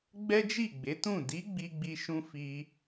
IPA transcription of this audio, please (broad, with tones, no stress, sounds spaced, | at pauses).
ɡ͡b ɛ˦ d͡ʒ i˦˨ ɡ͡b e˨˦ t ũ˦˨ d i˨˦ ɡ͡b i˦ ɡ͡b i˦ ʃ ũ˦ f i˧